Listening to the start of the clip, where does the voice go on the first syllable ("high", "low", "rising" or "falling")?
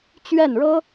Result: falling